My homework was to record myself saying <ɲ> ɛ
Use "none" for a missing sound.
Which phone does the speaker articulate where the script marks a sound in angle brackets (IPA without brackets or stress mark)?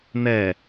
n